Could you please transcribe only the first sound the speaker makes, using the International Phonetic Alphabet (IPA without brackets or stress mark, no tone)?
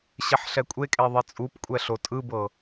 ɕ